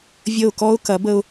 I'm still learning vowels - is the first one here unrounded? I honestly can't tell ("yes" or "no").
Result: yes